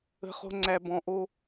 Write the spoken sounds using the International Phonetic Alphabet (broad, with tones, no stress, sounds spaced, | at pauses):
ə̤˦ χ o̤˦ ŋ͡ǀ æ˧ b ɔ̃˧ ʔ o˦